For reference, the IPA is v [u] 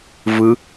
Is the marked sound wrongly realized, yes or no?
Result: yes